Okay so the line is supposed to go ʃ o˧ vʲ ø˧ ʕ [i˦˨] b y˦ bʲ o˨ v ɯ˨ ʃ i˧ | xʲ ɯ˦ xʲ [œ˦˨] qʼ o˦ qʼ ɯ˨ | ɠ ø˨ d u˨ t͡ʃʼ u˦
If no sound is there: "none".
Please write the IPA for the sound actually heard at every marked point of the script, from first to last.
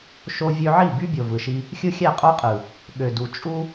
i˦˨, æ˦˨

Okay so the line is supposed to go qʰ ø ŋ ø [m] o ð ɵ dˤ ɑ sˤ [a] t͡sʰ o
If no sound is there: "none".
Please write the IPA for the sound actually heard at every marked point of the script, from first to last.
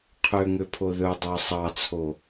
pʰ, ɑ

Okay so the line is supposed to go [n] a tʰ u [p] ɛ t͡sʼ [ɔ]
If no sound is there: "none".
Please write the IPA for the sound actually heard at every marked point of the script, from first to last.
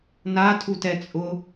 n, t, ʊ

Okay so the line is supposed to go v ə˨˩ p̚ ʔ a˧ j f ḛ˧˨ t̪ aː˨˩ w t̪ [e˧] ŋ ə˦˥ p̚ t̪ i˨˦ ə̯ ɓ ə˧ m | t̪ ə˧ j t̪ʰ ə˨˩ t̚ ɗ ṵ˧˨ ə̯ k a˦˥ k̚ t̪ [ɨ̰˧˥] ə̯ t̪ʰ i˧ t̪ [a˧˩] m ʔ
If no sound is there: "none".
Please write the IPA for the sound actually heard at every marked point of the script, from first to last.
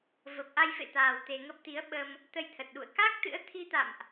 e˧, ɨ̰˧˥, a̰˧˨

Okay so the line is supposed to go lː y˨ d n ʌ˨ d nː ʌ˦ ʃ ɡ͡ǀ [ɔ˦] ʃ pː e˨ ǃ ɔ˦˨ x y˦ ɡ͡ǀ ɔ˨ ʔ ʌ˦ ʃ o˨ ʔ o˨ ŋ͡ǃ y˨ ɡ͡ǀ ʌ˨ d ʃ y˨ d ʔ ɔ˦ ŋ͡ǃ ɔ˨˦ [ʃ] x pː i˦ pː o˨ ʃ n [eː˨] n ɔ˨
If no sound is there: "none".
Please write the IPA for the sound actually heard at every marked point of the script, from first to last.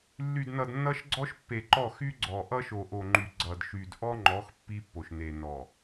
ɔ˦, none, e˨

